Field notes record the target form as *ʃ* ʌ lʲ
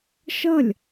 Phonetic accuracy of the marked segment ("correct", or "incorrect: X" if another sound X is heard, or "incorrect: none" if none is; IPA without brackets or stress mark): correct